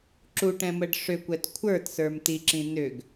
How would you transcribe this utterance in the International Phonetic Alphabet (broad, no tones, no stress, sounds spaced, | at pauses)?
ǁ u ʈ ɛ̃ m ə ɖ ʂ ʏ kʷ ɛ t kʷʰ ə˞ t s ə˞ m t i ǁ ĩ n ʏ ɡ